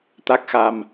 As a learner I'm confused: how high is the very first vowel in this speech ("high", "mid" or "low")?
low